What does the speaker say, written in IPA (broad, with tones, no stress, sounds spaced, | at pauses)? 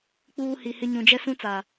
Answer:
k͡p uː˦ h i˨ h ɪ˦ ɲ ũ˨ d͡ʒ ɛ˦ s ũ˦ t͡s a˨